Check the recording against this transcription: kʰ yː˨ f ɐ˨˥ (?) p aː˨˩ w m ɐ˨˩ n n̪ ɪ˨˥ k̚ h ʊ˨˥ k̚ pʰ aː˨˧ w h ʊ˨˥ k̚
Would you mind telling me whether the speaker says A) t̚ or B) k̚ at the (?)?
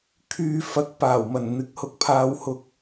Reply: B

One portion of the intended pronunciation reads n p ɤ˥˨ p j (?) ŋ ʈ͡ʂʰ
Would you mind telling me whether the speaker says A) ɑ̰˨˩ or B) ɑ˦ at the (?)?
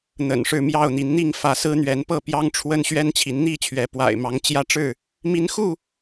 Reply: B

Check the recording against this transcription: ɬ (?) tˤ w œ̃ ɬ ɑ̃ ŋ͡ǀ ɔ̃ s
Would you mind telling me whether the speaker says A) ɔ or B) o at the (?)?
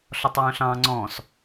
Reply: A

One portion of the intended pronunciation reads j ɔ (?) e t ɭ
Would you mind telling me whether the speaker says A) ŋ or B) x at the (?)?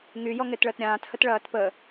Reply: A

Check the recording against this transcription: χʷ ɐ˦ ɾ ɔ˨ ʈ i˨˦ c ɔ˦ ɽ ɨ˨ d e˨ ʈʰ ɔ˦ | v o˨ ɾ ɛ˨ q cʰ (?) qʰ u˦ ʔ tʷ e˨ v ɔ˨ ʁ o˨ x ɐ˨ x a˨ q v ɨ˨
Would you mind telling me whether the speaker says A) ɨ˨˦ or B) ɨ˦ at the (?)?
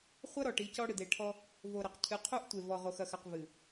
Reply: A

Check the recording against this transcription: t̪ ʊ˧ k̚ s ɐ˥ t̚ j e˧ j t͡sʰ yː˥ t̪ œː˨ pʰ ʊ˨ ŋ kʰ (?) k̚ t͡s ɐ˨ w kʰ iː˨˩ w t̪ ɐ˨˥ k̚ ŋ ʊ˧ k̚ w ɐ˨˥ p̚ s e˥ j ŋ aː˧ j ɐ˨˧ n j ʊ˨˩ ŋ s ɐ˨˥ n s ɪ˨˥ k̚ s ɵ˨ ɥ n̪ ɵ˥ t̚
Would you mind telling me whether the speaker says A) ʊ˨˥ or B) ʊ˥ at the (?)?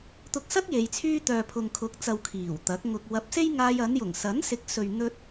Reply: A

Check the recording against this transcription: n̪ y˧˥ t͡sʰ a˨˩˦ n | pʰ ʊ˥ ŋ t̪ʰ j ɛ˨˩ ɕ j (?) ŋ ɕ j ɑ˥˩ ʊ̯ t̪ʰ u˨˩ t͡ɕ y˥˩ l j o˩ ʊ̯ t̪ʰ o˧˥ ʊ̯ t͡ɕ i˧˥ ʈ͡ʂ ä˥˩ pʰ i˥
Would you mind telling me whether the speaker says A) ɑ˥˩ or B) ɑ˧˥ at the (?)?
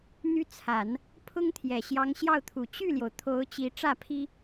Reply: B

